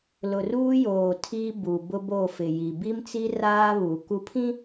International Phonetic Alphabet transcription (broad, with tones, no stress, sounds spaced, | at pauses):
l ʊ˨ r uː˦ j oː˨ tʰ iː˦ b u˨ b ʊ˦ b o˦˨ f ɪ˨ j i˨ b i˦ m t͡s i˦ r aː˦ β u˨ k u˨˦ pʰ ĩ˦